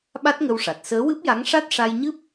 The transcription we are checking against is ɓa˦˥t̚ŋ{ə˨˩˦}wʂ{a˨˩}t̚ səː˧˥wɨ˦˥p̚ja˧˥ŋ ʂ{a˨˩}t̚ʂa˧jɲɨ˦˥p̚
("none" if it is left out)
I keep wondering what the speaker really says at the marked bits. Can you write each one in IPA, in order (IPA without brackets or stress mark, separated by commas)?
ə˧, a˨˩, a˦˥